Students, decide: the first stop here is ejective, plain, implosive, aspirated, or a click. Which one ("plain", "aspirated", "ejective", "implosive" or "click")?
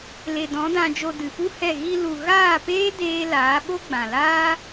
plain